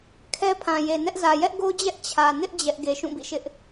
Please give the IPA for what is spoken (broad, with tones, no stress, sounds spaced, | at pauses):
kʰ ɛ˦ pʰ ã˨ j e˨ n ɛ˦ ʔ z ä˨ j ɛ˦ ʔ ɡ o˦ d͡ʑ ɛ˦ ʔ t͡ɕʰ ä˨ n ɪ˦ ʔ d͡ʑ ɛ˦ ʔ ɡ e˨ ʃ ũ˦˨ b ḭ˦˨ ʃ ɪ˦ ʔ